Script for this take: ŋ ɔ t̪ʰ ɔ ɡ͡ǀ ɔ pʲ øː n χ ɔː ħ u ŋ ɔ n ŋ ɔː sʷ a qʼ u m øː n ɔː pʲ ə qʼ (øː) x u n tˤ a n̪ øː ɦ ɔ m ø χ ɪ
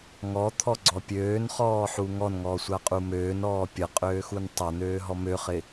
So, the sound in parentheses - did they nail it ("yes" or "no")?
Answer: yes